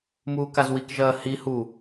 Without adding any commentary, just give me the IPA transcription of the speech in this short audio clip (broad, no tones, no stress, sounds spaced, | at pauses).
m uː k a z w i k ʒ ɐː h i h u